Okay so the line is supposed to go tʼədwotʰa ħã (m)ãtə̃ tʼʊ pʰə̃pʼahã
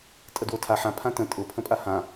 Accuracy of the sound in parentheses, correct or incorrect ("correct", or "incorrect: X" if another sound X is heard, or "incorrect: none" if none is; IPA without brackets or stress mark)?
incorrect: pʰ